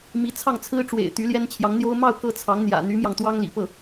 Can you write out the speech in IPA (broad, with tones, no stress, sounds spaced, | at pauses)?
m i˧˥ t͡sʰ ɑ˥˩ ŋ t͡sʰ ɹ̩˥ ʈ͡ʂ w ḛ˨˩ ɪ̯ t̪ y˧˥ l j ɛ˥ n t͡ɕʰ j ɑ˧˥ ŋ n̪ j o˥ ʊ̯ m ɑ˥˧ ʊ̯ k ɤ˥˩ t͡sʰ ɑ˧˥ ŋ n̪ j ä̰˨˩ n̪ y˧˥ m j ɑ˧ ŋ t̪ w ɑ˥ ŋ l ḭ˨˩ p ɤ˥˩